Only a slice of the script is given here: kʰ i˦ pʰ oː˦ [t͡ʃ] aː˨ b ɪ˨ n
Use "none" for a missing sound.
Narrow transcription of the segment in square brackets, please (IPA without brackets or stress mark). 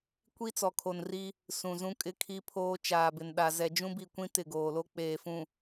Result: t͡ʃ